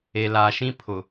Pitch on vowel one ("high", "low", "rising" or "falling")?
low